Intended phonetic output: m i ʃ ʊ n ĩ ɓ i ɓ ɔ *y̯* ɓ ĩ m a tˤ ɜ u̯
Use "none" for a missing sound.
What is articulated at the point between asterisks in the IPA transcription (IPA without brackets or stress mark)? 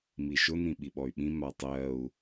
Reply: y̯